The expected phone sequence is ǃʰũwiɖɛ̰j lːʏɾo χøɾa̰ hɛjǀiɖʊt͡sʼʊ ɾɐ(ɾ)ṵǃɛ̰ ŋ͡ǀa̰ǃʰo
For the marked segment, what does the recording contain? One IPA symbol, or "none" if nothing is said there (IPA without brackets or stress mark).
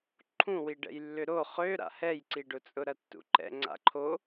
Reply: tː